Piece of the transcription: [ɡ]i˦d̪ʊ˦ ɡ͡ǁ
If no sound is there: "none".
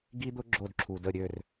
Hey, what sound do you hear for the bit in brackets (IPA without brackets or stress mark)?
ɡ